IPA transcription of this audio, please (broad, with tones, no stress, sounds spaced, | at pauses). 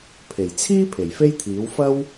pʰ e˨˩ j t͡sʰ iː˥ pʰ e˨˩ j f e˥ j t̪ʰ iː˨˥ w f ɐ˥ w